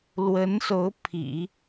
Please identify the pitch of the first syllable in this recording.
rising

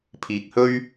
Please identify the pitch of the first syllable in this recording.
low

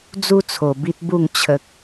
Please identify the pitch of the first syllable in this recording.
high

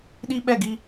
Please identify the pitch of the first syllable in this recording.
high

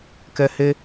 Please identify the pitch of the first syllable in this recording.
high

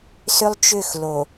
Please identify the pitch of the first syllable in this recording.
high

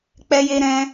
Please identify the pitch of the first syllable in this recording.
high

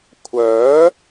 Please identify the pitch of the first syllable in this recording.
rising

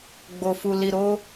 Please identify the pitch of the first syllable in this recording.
low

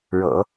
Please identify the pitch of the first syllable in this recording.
low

